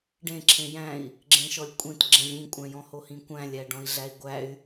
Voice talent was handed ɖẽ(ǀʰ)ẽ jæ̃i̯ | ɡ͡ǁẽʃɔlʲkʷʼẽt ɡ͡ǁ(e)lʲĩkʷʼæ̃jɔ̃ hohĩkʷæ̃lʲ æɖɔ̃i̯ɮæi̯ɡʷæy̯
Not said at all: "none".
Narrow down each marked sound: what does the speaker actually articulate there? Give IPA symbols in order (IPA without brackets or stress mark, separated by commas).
ǁʰ, ẽ